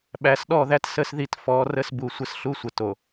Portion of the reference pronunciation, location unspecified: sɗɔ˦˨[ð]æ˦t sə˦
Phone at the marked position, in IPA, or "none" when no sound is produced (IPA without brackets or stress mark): ð